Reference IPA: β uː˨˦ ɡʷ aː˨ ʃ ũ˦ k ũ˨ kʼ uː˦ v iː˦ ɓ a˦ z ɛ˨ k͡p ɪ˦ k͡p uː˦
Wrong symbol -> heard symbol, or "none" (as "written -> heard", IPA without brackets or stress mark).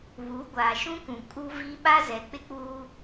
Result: none